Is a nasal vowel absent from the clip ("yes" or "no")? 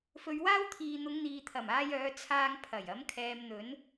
yes